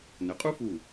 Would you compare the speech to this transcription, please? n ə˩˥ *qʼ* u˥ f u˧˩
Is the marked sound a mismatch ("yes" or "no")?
no